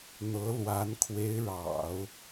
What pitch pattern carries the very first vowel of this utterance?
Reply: rising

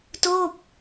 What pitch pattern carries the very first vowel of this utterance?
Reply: falling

